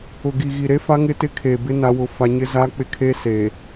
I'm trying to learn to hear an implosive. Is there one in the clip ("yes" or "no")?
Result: no